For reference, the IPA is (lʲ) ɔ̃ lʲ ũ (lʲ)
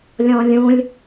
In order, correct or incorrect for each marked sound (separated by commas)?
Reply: correct, correct